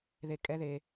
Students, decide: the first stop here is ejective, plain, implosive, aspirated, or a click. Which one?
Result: ejective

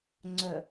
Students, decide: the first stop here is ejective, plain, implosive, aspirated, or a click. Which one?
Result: click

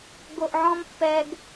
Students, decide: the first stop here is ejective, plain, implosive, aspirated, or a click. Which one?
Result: plain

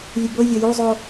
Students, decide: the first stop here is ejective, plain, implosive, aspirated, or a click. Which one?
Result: plain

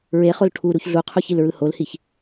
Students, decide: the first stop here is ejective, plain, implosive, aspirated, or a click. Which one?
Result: aspirated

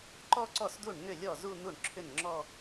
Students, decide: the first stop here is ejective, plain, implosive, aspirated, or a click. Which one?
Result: click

